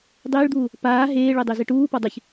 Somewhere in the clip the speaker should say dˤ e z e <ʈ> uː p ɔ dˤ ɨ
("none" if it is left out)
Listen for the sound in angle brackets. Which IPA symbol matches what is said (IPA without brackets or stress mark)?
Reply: ʈ